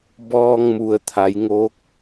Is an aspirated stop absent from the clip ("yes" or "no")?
no